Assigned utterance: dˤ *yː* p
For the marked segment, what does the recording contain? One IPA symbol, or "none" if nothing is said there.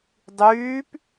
yː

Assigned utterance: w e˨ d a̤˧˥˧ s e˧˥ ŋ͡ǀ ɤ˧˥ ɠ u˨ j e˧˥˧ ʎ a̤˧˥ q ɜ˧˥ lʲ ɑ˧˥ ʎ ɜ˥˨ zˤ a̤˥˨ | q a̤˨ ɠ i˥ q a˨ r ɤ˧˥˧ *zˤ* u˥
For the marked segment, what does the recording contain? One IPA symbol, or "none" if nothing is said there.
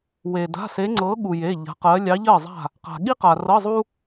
zˤ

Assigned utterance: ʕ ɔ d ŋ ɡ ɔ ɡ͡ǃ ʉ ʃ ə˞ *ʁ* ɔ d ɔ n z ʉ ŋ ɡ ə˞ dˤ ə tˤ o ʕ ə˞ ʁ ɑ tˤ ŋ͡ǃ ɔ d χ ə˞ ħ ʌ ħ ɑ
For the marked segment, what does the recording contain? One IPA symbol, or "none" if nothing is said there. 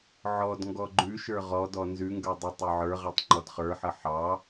ʁ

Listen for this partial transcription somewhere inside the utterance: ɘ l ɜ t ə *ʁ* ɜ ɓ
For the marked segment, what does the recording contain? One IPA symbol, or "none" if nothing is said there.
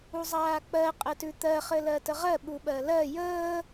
ʁ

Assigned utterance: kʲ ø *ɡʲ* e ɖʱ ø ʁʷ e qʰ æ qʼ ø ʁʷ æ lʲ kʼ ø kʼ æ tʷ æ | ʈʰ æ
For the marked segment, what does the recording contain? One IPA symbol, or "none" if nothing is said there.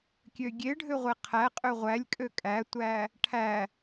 ɡʲ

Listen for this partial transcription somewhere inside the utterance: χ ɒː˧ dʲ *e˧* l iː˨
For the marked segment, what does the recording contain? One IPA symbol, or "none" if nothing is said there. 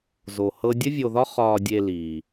e˧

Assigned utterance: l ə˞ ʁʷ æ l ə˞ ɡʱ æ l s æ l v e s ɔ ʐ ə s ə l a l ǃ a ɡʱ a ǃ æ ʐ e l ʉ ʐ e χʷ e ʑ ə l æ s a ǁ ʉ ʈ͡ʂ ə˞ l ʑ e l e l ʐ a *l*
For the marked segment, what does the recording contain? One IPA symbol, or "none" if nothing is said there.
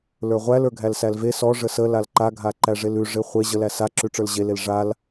l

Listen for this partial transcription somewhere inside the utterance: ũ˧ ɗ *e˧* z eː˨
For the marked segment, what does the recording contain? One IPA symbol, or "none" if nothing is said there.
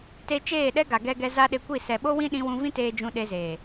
e˧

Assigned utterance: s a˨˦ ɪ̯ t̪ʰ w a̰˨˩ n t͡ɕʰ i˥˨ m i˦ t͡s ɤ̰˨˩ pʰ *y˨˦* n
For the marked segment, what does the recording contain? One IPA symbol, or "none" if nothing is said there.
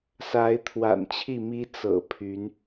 y˨˦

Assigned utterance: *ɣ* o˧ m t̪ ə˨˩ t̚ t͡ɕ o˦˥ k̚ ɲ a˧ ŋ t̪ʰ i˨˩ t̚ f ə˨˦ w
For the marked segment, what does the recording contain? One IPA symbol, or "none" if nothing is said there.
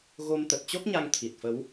ɣ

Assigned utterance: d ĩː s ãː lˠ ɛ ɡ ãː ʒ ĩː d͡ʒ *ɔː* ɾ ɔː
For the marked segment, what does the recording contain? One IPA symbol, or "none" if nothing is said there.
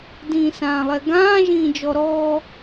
ɔ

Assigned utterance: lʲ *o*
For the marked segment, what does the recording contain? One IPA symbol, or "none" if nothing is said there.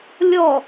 ɔ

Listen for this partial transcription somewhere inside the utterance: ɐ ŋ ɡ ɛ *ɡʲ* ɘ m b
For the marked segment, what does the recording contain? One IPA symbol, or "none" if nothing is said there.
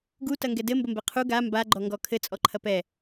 d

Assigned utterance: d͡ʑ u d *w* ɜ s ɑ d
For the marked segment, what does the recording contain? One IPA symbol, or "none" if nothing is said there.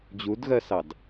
ɣ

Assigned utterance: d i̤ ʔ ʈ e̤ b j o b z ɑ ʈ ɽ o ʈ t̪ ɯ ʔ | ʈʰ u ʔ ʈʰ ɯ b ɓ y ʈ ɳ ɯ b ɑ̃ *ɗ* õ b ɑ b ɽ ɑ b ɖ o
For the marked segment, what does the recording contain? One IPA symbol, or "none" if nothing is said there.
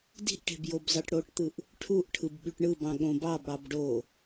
ɠ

